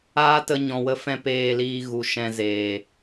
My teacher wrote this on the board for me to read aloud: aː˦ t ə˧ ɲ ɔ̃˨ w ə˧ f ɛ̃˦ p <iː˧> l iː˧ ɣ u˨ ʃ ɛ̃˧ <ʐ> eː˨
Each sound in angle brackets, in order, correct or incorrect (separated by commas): incorrect, incorrect